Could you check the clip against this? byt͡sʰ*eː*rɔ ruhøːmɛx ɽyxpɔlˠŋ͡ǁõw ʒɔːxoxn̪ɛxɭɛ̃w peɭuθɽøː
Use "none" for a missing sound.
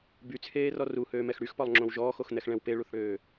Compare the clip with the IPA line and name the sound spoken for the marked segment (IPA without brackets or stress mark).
eː